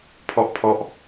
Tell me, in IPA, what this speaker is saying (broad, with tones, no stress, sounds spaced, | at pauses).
pʰ ɔ˦˥ ʔ pʰ ɔ˦˥ ʔ